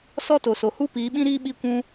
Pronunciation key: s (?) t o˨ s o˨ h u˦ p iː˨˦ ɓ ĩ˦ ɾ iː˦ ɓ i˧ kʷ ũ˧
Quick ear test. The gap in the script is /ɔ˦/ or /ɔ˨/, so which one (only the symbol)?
ɔ˦